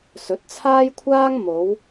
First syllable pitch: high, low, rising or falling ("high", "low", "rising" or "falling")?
rising